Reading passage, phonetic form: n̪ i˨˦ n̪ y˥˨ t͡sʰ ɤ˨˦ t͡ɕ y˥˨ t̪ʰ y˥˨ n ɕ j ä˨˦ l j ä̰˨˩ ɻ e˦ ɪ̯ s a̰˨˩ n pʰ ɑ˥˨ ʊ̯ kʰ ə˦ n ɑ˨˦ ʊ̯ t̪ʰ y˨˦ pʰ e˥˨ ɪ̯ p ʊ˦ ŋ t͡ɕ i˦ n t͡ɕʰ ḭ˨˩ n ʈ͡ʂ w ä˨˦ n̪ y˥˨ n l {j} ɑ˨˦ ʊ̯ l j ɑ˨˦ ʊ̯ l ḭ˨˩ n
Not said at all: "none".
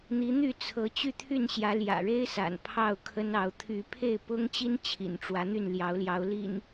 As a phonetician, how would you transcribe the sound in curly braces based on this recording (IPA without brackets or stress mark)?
j